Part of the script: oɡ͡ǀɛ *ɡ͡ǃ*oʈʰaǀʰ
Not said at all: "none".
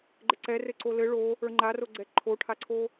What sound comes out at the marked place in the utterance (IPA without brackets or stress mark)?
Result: ǃʰ